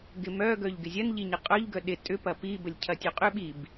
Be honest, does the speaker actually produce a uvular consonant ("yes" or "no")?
yes